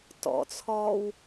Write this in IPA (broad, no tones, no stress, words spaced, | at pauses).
tɔ̰t͡sʰɔːw